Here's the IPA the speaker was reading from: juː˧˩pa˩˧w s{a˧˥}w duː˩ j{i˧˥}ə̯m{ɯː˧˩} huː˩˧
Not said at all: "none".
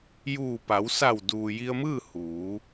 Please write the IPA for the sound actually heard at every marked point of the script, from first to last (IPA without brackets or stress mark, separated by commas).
a˧˩, i˧, ɯː˥˨